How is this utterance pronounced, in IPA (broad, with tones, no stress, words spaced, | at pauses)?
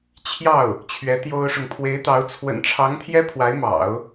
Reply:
t͡ɕʰjɑ˥˩ʊ̯ | t͡ɕʰɥɛ˧˥t̪jo˥ʊ̯ʂʊ˨ŋ pʰwe˧˥ɪ̯t̪ɑ˧˥ʊ̯ t͡sʰwə̰˨˩nʈ͡ʂʰɑ˧˥ŋt̪ʰjɛ˥ pʰwa˧˥ɪ̯mɑ̰˨˩˦ʊ̯